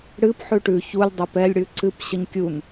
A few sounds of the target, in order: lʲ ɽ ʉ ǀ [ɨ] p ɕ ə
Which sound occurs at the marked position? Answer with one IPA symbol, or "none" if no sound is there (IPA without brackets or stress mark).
ɨ